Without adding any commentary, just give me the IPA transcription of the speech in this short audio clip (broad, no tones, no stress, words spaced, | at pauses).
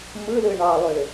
mɯlɯ ɳɑlˠø